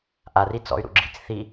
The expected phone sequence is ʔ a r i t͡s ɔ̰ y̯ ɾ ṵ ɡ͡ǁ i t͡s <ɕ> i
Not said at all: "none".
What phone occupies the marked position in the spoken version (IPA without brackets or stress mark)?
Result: θ